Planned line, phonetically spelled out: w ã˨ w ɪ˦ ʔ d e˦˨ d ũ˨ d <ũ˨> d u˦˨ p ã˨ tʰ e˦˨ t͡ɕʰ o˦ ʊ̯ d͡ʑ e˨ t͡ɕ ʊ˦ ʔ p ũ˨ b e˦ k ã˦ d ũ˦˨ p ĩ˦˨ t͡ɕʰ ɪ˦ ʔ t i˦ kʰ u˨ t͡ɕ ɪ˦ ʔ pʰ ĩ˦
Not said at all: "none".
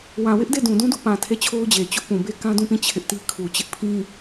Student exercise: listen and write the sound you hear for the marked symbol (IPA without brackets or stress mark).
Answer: ũ˦